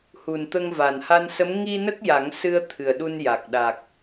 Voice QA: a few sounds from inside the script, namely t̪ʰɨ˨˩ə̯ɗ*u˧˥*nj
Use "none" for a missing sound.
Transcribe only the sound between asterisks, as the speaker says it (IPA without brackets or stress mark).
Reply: u˧